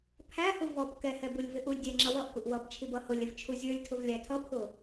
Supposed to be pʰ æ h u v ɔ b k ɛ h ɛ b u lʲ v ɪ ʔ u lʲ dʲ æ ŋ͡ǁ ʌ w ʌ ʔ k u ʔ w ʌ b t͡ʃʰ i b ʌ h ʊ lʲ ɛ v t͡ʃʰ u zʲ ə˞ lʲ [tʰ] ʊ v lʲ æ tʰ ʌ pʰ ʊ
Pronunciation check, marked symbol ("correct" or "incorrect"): correct